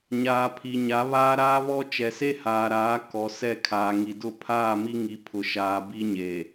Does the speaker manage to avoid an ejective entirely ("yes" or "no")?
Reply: yes